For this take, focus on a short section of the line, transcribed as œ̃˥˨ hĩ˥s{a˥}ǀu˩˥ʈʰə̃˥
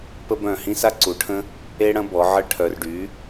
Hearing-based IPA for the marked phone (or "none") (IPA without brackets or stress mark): a˥